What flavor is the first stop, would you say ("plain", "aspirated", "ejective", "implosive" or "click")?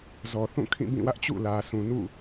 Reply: aspirated